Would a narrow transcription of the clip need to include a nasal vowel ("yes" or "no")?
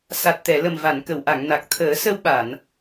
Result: no